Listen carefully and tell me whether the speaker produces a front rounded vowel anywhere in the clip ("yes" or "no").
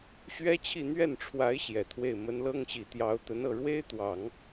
no